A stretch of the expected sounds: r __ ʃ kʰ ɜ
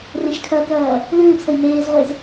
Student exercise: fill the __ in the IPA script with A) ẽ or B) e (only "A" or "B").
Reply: A